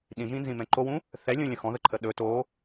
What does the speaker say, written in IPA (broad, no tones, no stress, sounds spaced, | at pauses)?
ɗ ĩ ʒ ĩ n z ĩ m ɛ̃ ǃ o w ũ | θ ɛ lʲ ũ lʲ ə̃ x ɔ̃ ð ə ǃʰ ə ɗ ɵ t o